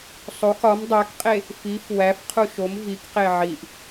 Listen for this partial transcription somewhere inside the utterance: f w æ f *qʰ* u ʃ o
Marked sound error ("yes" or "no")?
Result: no